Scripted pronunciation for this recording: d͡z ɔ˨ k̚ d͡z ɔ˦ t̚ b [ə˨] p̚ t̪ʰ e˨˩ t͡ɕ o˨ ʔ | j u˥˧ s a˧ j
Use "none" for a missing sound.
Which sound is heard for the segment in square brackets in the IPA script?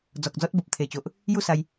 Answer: ə˨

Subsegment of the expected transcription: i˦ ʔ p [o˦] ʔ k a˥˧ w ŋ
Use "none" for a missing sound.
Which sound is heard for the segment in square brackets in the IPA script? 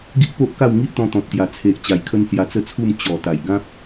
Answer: o˦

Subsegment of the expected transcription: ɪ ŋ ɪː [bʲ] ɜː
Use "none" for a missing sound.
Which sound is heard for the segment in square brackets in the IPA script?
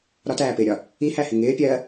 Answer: pʲ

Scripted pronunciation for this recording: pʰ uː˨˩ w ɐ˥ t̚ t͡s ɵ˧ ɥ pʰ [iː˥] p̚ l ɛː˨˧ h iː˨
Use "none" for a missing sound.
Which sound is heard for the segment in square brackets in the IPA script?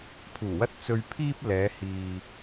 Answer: iː˥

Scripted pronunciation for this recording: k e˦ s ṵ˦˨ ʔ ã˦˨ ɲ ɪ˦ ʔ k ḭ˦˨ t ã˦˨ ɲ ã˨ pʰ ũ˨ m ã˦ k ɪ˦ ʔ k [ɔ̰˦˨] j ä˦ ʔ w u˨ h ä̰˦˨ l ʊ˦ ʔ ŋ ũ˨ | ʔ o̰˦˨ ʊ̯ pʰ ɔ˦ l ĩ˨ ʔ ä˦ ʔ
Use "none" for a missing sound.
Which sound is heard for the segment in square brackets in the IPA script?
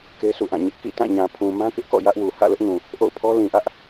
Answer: ɔ̰˦˨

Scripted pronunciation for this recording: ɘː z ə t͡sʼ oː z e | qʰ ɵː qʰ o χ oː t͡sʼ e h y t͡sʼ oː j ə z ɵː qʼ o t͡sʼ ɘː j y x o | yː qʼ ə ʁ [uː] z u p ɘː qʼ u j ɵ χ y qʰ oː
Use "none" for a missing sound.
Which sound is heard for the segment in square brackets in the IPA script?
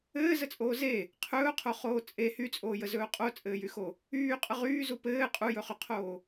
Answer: yː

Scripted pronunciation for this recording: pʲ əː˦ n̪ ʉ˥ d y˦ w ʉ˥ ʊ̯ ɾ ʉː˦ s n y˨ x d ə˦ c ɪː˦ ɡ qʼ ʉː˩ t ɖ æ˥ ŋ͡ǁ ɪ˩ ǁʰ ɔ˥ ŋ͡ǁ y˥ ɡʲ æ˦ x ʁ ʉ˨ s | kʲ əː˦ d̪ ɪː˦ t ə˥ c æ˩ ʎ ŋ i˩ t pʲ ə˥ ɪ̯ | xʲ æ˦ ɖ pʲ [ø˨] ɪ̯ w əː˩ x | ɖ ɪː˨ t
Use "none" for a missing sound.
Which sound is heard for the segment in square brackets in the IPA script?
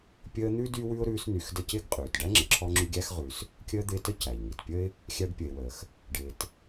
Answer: ə˨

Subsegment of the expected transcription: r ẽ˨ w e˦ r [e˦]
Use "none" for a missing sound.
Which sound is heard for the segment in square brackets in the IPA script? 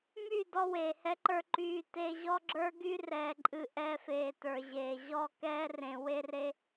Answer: e˦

